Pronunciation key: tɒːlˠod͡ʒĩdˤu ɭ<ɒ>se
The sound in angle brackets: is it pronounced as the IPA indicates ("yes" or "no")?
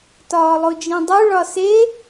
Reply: yes